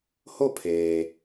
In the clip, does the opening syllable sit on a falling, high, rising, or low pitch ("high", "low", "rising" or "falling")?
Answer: falling